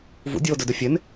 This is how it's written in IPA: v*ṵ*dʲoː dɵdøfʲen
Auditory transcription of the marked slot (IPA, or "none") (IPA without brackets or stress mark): ṵ